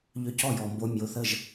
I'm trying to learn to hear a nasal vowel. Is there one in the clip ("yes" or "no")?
no